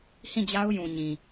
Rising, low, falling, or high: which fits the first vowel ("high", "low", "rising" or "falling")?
falling